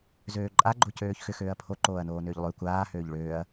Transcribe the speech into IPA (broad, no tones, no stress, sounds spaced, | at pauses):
z øː ǃʼ a ɡ͡ǃ o c øː ç x ʏ x øː ɐ̯ pʰ o ǃ oː ɐ̯ n oː n ʏː ʎ lˠ ø kʷ aː h øː ʎ ɭ øː ɐ̯